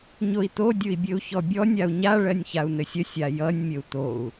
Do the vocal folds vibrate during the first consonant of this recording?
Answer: yes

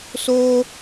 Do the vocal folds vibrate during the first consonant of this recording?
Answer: no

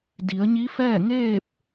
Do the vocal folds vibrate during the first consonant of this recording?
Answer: yes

